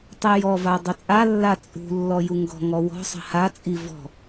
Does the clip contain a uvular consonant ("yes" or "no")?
no